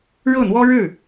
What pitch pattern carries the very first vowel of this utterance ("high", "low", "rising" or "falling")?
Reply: falling